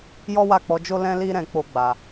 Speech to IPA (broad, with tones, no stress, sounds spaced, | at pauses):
j ɔ˦ w a˦˨ k͡p ɔ˨˦ d͡ʒ o˦ l ɛ̃˦ l i˦ ɾ ɛ̃˧ k͡p o˧ ɡ͡b a˨